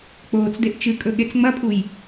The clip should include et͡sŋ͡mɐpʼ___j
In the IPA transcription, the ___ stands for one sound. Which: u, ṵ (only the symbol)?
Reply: u